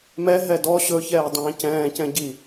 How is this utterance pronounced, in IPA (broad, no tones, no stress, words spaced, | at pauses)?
mɛ ɦɛdɔ ɕɵ çɛːdˤɛ̃ːcɛ̃ː cɛ̃ɟi